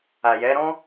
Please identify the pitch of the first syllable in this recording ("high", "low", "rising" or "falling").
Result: low